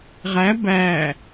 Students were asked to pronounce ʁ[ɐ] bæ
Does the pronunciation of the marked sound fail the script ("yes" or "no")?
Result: yes